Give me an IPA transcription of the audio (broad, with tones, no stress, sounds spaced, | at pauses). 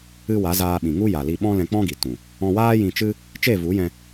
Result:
ɨ˧ w a˨˦ z aː˧ ɓ ĩ˨ ŋ u˦ j a˨ l i˧ ɓ ɔ̃˦ l ɛ̃˧ k͡p ɔ̃˦ ɡ i˨ t ũ˨ | ɔ̃˧ w aː˦ j ĩ˧ t͡ʃ ɨ˦ | t͡ʃ e˦˨ v u˨˦ j ɛ̃˧